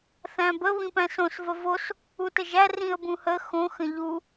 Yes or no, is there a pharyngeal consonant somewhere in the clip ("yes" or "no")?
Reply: no